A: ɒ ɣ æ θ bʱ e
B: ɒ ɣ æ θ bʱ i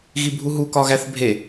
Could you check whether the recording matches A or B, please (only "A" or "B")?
A